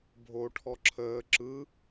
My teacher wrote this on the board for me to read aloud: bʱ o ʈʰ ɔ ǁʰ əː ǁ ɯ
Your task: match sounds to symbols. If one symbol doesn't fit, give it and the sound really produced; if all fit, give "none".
none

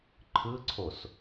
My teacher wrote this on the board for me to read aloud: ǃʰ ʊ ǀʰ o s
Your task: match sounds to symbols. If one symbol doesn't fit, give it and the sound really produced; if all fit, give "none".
ʊ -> ɯ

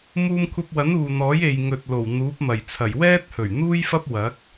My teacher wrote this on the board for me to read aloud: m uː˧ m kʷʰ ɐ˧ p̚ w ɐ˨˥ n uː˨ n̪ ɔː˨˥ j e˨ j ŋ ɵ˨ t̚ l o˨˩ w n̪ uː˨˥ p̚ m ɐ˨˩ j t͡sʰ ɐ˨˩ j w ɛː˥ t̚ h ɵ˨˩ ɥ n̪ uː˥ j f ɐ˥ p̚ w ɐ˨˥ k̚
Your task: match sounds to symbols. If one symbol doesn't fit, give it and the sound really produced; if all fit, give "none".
none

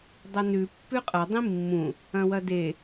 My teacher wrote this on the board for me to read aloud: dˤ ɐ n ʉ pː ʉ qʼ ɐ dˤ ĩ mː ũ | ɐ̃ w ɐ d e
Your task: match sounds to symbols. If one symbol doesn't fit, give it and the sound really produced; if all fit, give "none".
none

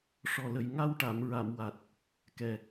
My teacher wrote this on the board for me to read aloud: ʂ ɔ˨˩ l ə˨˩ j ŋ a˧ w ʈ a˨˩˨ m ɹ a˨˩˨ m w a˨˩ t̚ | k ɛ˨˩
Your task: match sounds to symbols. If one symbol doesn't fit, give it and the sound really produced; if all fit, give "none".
none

